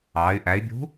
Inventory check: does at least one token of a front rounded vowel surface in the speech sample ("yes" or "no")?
yes